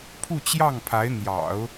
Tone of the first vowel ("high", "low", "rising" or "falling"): falling